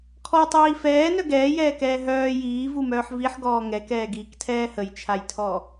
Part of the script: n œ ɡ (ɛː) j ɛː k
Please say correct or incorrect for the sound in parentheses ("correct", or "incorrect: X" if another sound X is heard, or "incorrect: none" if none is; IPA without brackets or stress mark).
correct